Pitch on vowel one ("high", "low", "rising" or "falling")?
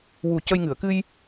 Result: low